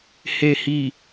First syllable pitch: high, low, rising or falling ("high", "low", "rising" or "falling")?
low